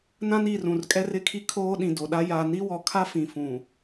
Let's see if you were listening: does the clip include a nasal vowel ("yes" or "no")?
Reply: yes